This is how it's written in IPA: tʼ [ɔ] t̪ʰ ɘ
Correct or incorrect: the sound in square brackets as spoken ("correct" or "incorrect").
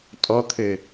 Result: correct